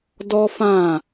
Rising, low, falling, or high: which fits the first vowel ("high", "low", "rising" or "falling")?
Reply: high